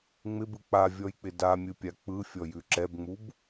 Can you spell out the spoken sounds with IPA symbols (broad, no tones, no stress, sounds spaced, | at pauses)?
ŋ͡m ɪ b ɯ k͡p a vʲ ɔ j k͡p ɪ d a mʲ ɯ pʲ a k͡p ɯ fʲ ɔ j ʉ ǁ ɛ b ŋ͡m u b